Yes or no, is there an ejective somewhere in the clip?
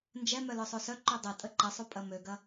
yes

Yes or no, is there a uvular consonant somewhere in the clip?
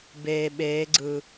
no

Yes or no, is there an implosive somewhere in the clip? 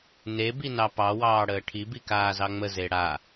no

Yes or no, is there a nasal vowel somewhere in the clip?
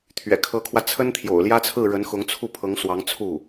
no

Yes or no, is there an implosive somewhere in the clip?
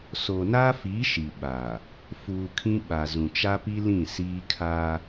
yes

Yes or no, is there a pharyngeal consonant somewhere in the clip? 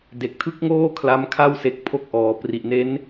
no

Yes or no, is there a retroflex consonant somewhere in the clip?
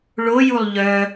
yes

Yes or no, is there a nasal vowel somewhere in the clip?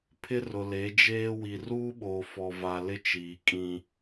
yes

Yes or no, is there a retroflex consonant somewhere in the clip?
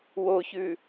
no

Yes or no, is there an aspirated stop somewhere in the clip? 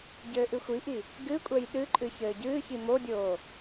no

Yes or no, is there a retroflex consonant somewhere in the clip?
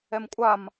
no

